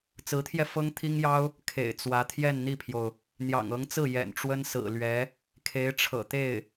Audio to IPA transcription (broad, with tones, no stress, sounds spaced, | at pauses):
t͡s ɹ̩˧˥ t̪ʰ j ɛ˧ f ɤ˥ ŋ t̪ʰ i˥ ŋ j ɑ˥ ʊ̯ | kʰ ḛ˨˩ ɪ̯ t͡s w ä˧˥ t̪ʰ j ɛ˥˧ n n̪ i˥˩ pʰ j o˩ ʊ̯ | n̪ j ɑ̰˨˩ ŋ ɤ˧˥ ŋ t͡s ɹ̩˥˩ j ɛ̰˨˩ n ʈ͡ʂ w ə˥ n s ɹ̩˨˩ l ɥ ɛ˧˥ | kʰ e˧˥ ɪ̯ ʈ͡ʂʰ ɤ̰˨˩ t̪ e˥˩ ɪ̯